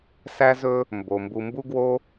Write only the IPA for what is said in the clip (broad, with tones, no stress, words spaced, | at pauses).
sæ˦zɵ˦ | mbo˩mbu˨mbu˦ ɡwo˥